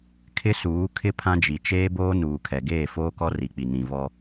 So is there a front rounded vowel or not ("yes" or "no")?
no